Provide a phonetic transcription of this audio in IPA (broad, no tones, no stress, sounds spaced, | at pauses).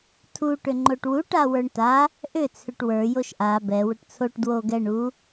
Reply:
tʰ u ʈ ʏ ŋ͡ǃ o ʈ w u ʈ a w ə˞ ɳ t a | ʔ ʏ t͡sʰ ʏ ʈ w ə˞ j o ʃ ʔ a b ɛ w ʏ ʈ t͡sʰ o ʈ d w o ɡ ɛ ɳ u